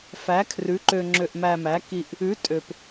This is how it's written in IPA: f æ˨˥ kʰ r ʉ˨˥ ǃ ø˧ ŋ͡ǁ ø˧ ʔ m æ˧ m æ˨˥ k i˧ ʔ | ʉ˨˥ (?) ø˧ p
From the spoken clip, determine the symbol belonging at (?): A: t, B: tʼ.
B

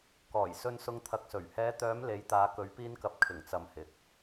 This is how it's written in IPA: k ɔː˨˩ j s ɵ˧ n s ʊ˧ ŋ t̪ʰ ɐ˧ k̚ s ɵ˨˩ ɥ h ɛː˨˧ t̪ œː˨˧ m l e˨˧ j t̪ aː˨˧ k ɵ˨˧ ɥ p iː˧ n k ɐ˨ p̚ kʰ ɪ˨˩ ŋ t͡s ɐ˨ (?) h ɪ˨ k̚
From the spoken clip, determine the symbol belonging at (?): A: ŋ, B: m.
B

